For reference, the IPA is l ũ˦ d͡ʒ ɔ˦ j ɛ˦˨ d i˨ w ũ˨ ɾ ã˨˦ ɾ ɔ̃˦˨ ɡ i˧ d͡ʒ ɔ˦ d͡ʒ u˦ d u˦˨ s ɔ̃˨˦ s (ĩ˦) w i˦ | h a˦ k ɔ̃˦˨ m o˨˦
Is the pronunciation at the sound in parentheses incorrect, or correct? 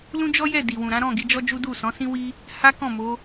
correct